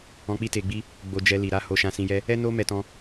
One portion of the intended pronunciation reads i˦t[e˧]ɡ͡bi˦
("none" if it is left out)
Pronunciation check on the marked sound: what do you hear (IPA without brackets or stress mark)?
e˧